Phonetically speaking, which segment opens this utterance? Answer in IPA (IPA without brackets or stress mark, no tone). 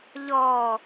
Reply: ʎ